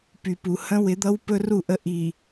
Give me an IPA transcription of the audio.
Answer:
p y˨ p u˨ h ə̃˦ w ɪ˨˦ d̪ ʌ˦ w p ɵ˦ r u˦˨ ʔ ə˦˨ ʔ i˨

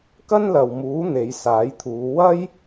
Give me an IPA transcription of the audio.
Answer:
k ɐ˥ n l ɐ˨ w m uː˨˥ n̪ e˨˧ j s aː˨˥ j t̪ʰ uː˨˧ w ɐ˥ j

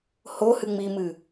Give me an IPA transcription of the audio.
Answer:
h o h ɨ ŋ͡m i m ɨ

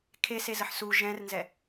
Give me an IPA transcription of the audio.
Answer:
kʰ e s e z ə ħ s u ʒ ɛ̃ r n z ɛ

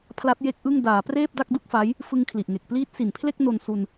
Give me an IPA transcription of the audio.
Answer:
pʰ l a˦˥ t̚ j e˦˥ k̚ ʔ ɯ˥˩ ŋ d aː˩˦ p r eː˥˩ p̚ d a˥˩ k̚ d u˥˩ k̚ f a˦˥ j | f ɯ˧ ŋ kʰ l i˨˩ ʔ ŋ e˨˩ k̚ p l iː˦˥ t̚ s i˨˩ n pʰ l e˥˩ k̚ n o˧ n s u˧ n

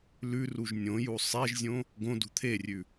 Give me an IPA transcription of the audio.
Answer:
l ʉ r u ʒ nʲ õ j u sˤ e ʒ zʲ õ | ɡ õ d ṳ t̪ʰ e rʲ ʉ

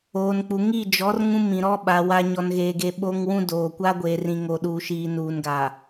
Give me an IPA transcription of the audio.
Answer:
oː˨ n k͡p u˨ ŋ i˦˨ d͡ʒ ɔ˨˦ r ŋ ũ˦ m ĩ˨ ɾ ɔ˦ ɓ a˨ w a˦ ɲ ɔ˦ n ɣ eː˦ ɡ e˦ ɓ o˦ ŋ w ũ˦ d oː˨ kʷ a˦ ɡʷ eː˨ r ĩ˨ ŋ o˨ ɗ uː˨ ʃ iː˨ n uː˨ n ɡ a˨

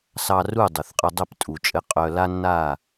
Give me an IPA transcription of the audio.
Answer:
s ɑ˧ r u˦˨ dˤ y˨ θ qʼ ɘ˧ dˤ ɘ˦˨ p tʼ u˨ t͡ʃʼ ɘ˧ qʼ œ˧ l a˦ nː a˦˨

